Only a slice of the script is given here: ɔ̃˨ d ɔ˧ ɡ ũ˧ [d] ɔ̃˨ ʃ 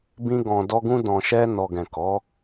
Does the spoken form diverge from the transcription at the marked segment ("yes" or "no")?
no